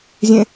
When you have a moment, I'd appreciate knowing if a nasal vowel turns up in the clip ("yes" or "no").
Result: yes